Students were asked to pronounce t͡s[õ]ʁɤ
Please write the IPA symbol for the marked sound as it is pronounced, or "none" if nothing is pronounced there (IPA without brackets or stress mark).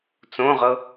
õ